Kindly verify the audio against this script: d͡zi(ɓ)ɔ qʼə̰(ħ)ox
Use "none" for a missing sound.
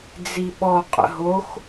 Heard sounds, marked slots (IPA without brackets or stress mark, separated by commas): ɓ, ɦ